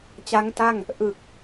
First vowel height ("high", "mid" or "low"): low